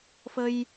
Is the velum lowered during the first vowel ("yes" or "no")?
no